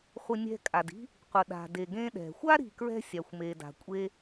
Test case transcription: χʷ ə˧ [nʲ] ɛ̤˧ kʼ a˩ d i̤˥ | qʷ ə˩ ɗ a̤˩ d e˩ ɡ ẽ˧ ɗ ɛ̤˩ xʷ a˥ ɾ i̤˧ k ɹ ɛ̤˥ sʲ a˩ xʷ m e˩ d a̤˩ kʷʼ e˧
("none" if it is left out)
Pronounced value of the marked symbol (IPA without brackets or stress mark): nʲ